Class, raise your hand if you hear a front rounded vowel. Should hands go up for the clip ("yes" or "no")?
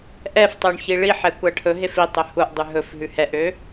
yes